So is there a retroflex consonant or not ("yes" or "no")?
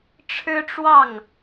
yes